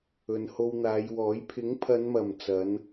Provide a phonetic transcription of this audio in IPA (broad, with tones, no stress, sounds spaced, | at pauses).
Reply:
ɵ˨ n h o˧ w n̪ aː˨˧ j w ɔː˨˥ j pʰ ɪ˨˥ ŋ pʰ ɐ˨˧ n m ɐ˨˩ m t͡s ɐ˨˥ n